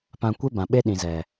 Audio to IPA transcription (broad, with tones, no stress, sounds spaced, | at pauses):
p ã˧ kʷ e˦ b ã˨ ɓ e˦ ɗ ĩ˨ z ɛ˨